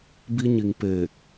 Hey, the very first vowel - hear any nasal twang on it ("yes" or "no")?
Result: no